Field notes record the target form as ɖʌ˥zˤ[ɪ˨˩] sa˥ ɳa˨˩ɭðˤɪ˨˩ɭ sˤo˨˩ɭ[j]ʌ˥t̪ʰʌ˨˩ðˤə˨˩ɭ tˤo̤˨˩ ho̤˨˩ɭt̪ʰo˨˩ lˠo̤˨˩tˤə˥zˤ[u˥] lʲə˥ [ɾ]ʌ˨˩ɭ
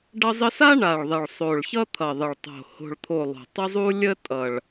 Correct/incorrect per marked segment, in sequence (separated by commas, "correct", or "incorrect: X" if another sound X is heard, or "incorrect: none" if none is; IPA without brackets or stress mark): incorrect: ɪ˥, incorrect: ç, correct, incorrect: tʼ